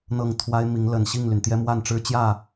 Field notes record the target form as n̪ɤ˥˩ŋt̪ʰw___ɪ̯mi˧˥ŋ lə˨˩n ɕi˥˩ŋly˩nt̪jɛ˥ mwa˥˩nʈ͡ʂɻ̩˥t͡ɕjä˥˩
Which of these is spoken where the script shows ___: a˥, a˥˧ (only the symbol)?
a˥